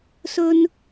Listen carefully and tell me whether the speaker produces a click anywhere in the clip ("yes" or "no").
no